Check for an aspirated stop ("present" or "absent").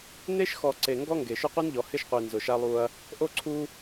present